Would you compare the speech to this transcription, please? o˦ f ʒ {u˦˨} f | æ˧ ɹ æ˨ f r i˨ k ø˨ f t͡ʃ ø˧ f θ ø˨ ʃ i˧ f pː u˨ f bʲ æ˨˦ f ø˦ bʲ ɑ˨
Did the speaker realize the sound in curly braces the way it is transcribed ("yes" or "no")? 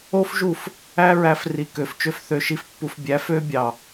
yes